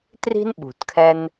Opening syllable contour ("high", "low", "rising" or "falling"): high